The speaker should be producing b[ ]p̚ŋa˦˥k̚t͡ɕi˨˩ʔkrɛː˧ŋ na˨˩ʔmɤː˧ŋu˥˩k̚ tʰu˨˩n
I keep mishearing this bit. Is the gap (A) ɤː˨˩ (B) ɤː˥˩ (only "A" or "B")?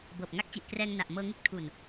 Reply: A